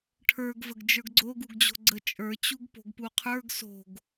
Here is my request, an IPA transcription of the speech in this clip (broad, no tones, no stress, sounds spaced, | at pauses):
ʈʰ ə˞ ɡ v ə ɡ d͡ʒ ə˞ ɡ ɡ͡ǀ o ɡ u ɡ d͡ʑ o̤ ɡ͡ǀ ə t͡ʃʼ ə˞ t͡ɕ u ɡ p o̤ ɡ p u qʰ ə˞ ɡ s o̤ ɡ